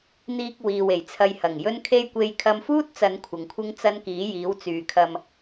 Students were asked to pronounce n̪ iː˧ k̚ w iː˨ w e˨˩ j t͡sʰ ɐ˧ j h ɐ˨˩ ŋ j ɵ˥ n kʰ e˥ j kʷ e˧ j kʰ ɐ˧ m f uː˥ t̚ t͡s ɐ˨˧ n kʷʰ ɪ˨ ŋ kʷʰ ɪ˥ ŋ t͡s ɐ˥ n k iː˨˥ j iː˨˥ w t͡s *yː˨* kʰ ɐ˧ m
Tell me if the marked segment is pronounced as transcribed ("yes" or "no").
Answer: yes